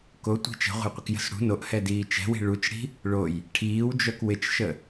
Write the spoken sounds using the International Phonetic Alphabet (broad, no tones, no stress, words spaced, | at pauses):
kotʷi̤ t͡ʃə̤ʁʷə̤jqʷɪkjə̤s ɽṳ noʔhɛdiː t͡ʃɛ̤wi̤ ɭut͡ʃɽi̤ | ɭoj | ʈʰiːwd͡ʒœk wɪt͡ʃʃə